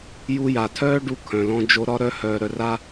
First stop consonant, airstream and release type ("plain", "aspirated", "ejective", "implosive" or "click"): aspirated